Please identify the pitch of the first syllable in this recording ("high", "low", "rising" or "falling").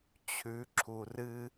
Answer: rising